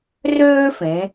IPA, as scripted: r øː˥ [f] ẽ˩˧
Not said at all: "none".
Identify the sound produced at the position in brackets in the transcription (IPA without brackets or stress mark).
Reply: f